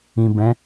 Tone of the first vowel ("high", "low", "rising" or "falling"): low